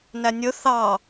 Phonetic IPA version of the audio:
n æ nʲ ɵ θ ɑ

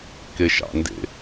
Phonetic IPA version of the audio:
k e ʃ ɑ̰ n d ḛ

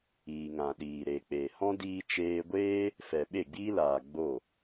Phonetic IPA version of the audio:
iː˨ ŋ ã˨ ɗ iː˨ ɾ e˨ k͡p eː˨ h ɔ̃˦ d iː˧ t͡ʃ eː˧ ɡʷ eː˦ | f ɛ˨ ɓ e˦˨ ɡ͡b iː˦ l aː˨ ɡ͡b o˦˨

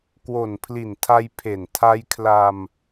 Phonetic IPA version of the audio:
k w o˨˩ n pʰ l i˨˩ n tʰ a˧ j pʰ e˨˩ n tʰ a˧ j kʰ l a˧ m

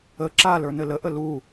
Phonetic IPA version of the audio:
ə ǁ a l ə˞ n ɘ l ə ʔ ə l u

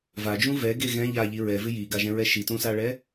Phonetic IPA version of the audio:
v a d͡ʒ ũ v ɛ ɡ e ɣ ɛ̃ ʎ a ʎ i ɹ ɛ v ɪ j i ɡ a ʒ ɛ̃ ɹ ɛ ʃ i t ũ s a ɭ ɛ

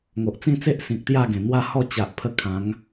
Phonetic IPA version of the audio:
ŋ o˨ ʔ t͡s ĩ˥˧ t͡s e˦ ʔ s ĩ˨ k̚ t̪ j a˥˧ ɡ ẽ˨˩ n̪ w a˥˧ h ɔ˥˧ t͡ɕ a˨ ʔ pʰ ə˧ kʰ ã˨˦ ŋ

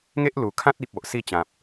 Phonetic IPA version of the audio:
ŋ e˦ ʔ l u˨˩ kʰ ã˦ t̚ i˨ p̚ o˨ ʔ s i˥˧ t͡ɕ ã˨ p̚

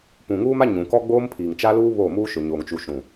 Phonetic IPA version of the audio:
p ũ˨ ŋ uː˦ m a˦ ɲ ũ˨ k ɔ˦ ɡ͡b oː˦ m pʰ iː˨ ŋ t͡ʃ a˦ l uː˦ β oː˦˨ m uː˦ ʃ ʊ˨ ɲ oː˨ ŋ t͡ʃ u˨ ʃ ũ˨

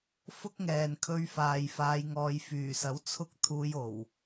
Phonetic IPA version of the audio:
f ʊ˥ k̚ ŋ ɛː˨ n kʰ ɵ˧ ɥ f aː˨ j f aː˧ j ŋ ɔː˧ j f yː˨˩ s ɐ˨˥ w t͡sʰ ʊ˥ k̚ t̪ʰ uː˧ j o˨˩ w

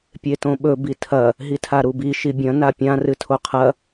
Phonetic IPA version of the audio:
pʲ e t õ ɓ ɵ b i tʰ ɐ | ɦ i tʰ a ɾ u b i ʃ i bʲ ɐ̃ n a pʲ ã r ɨ tʰ o qʰ ɐ

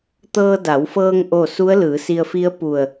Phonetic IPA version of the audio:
t̪ ɤː˧ d a˩˧ w f ɤː˧ ŋ ʔ o˥˨ s u˧˥ ə̯ l ɯː˩˧ s i˧ ə̯ f i˧˥ ə̯ p u˧˩ ə̯

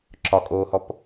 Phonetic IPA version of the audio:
ǁ ɒ kʼ oː h ɔ p

